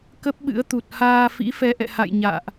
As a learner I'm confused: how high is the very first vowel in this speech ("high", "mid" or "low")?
mid